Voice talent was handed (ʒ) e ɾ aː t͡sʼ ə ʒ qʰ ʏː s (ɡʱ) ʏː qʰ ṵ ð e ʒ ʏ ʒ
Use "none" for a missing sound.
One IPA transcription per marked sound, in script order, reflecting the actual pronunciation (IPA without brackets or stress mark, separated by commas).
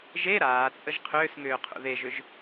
ʒ, ŋ